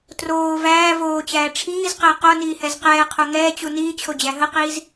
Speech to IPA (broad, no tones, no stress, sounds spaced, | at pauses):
t r oː v æː v oː t͡ɕ æː ʈ͡ʂʰ iː z q əː q o n iː h ɛ z q ɛː qʰ o ŋ ɛː t͡ɕ u n iː t͡ɕʰ o d͡ʑ æ ɦ ə q iː z